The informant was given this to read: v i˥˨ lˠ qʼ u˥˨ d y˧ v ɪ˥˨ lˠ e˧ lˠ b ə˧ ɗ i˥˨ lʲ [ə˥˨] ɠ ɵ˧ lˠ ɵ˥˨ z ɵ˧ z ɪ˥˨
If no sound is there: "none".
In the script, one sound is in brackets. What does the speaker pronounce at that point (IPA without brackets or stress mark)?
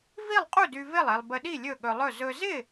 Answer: ɵ˥˨